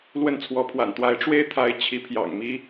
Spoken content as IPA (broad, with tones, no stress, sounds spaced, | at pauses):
l w ə˥˩ n t͡sʰ w ɔ˧˥ pʰ w a̰˨˩ n t̪ w a˧˥ ɪ̯ ʈ͡ʂ w e˥ ɪ̯ t̪ʰ a˧˥ ɪ̯ t͡ɕʰ i˧˥ pʰ j ɑ̰˨˩ ŋ m i˥